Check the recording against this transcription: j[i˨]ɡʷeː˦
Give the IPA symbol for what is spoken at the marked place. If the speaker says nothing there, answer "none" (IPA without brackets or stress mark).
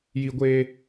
i˦